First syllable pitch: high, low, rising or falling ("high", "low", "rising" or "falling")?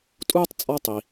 high